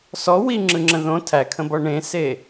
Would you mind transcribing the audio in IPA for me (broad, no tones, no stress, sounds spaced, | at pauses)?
s ɔ w i ŋ͡ǁ ɯ ŋ͡ǁ ə̃ ð õ tʰ æ kʰ ə̃ b ɔ ɳ ẽ s e